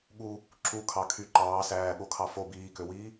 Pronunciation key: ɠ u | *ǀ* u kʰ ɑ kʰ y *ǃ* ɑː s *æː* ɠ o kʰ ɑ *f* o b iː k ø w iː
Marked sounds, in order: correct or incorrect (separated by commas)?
incorrect, correct, correct, correct